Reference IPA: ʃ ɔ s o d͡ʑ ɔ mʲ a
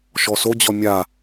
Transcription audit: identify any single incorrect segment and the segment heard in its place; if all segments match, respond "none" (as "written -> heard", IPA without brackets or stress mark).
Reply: none